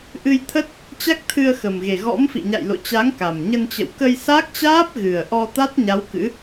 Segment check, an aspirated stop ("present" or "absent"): present